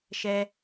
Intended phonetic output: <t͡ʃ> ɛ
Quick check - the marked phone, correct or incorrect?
incorrect